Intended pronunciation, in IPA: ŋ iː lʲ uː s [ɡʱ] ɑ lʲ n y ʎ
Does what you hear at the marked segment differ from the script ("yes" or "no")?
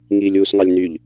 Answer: yes